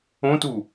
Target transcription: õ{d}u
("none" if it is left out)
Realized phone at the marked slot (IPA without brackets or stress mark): t